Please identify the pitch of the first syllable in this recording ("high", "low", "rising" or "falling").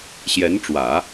rising